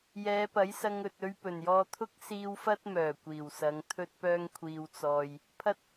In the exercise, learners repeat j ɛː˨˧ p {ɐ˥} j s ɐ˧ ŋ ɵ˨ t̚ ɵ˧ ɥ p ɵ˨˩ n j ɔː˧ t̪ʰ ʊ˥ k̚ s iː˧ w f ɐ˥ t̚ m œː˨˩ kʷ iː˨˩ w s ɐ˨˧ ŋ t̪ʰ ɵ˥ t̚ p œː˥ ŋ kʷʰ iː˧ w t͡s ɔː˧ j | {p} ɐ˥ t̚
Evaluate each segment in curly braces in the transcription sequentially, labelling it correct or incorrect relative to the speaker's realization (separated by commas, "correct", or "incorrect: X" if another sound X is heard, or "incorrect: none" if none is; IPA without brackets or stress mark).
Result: incorrect: ɐ˨˥, incorrect: pʰ